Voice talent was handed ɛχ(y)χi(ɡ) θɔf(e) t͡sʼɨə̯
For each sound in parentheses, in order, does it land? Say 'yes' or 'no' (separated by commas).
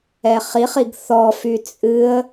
no, yes, no